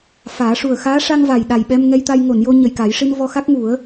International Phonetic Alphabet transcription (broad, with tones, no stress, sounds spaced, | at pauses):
f aː˨˩˦ ʂ u˨˩ ə̯ x aː˧˥ ʂ a˧ ŋ v a˨˩ j ɗ a˨˩ j ɓ ɛ˧ m ŋ ɛ˧ j t̪ a˧ j ŋ o˨˩˨ n j o˧ ɲ ə˨˩ j k aː˨˩˦ j ʂ i˧ n v ɔ˧ x a˦˥ k̚ ŋ u˨˩˦ ə̯